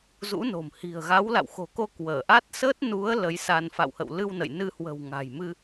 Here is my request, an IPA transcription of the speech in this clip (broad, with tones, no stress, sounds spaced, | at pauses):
z ṵ˧˥ n o̤˨˩ m h i̤˨˩ ə̯ ɣ a˨˦ w l a̰˧˨ w x o̤˨˩ k o˧ k w əː˧˩ ʔ a˦˥ t̚ s əː˦˥ t̚ n u˨˦ ə̯ l ə˨˦ j s a˧ n f a̰˧˨ w h ə̰˧˨ w l ɨ˧ w n ə̰˧˨ j n ɨ˧ h w ə̤˨˩ w ŋ a̤˨˩ j m ɨ˧